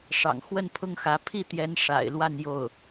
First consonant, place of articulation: retroflex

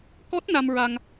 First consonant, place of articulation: velar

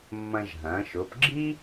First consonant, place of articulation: labial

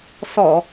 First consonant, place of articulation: alveolar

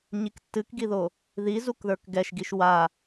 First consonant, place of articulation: palatal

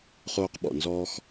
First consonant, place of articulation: uvular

